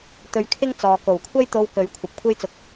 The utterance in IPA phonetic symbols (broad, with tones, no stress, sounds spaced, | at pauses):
t̪ ɵ˧ ɥ kʰ ɪ˥ ŋ t͡s ɔː˨˧ k o˨˩ w kʷʰ ɐ˥ j t̪ o˧ w k ɵ˨˥ ɥ kʷʰ ɐ˨ p̚ kʷʰ e˥ j t͡s ʊ˨ k̚